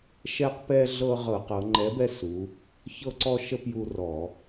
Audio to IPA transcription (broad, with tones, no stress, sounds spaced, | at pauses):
ʃ ɛ˦ q p ɛ˦ ɮ ɤ˦ ʁ ɤ˧˩˧ q ɤ˩˧ ŋ͡ǃ ɛ˨˥ b ɛ˦ s u˩˧ | ç ɤ˦ ǀ ɔ˦ ʃ ə˦ p j u˦ r ɔ˧˩˧